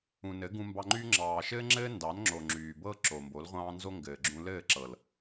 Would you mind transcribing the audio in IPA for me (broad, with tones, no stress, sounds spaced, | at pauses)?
ũ˨ n ɘ˨˦ ɡ ũ˧ m b ɑ˧ ŋ͡ǃ yː˦ ŋ͡ǁ ɑː˨ ʃ ɘː˦ ŋ͡ǁ ɘː˦ n d ɑ˨˦ n ŋ͡ǁ o˨ ŋ͡ǁ yː˨ b ɤ˦ ǁ o˨ m b o˨˦ l ʁʷ ɑ̃ː˦ n z o˦ ŋ ɡ ɘː˨ ɡ͡ǁ ũ˧ l ɘː˦˨ ǁ ɤ˨ l